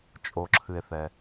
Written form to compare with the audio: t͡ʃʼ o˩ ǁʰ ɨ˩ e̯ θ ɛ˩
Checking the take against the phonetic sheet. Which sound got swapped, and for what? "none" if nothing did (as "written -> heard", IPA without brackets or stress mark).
none